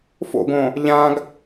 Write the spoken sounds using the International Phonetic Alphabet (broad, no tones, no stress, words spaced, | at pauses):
fo̰ɡõ | ʎãɡ